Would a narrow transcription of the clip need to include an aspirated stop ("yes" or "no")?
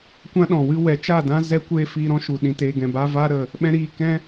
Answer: no